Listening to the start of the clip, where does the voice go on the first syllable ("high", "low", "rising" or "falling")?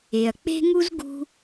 low